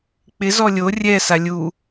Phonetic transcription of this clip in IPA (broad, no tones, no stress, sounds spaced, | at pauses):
k͡p ɪ z ɔ lʲ o rʲ ɛ s a lʲ u